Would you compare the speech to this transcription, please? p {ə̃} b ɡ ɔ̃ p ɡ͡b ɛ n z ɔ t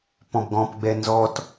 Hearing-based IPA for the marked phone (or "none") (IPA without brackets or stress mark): ɔ̃